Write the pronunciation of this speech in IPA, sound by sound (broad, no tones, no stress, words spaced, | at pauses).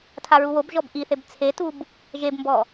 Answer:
tʰaɹuwobʒɔb ʔiθeb t͡sʰetub | ʒebmbɔ